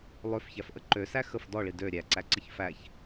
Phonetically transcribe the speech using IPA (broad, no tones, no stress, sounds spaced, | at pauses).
lˠ ø f ç æ f ʔ ə ǃ ø s æ x ə f d ɔ ɭ i d ø ɾʲ æ ǀ æ ǀ ə ç f æ ç